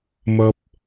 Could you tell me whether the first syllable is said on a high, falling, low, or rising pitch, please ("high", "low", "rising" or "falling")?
high